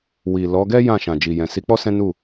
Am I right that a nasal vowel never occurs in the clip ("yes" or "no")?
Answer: no